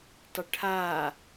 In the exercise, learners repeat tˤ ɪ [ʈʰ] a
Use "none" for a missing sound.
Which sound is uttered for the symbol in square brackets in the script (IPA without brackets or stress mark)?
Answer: ʈʰ